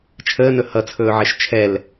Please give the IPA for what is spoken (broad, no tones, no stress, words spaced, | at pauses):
t͡ʃʰəːnɵ hʌt͡sʰɵːʕeʃ t͡ʃʰɛl